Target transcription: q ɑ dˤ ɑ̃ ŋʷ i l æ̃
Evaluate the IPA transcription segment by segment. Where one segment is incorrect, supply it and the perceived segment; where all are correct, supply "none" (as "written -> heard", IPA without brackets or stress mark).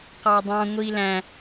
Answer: none